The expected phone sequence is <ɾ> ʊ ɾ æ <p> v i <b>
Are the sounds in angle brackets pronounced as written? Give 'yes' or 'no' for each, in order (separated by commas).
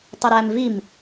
no, no, no